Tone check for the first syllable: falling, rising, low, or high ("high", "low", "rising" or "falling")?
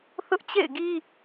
high